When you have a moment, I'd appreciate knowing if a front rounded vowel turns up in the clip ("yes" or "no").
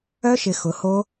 yes